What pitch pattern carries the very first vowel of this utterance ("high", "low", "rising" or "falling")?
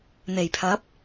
low